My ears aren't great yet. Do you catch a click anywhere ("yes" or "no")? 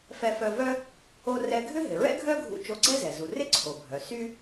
yes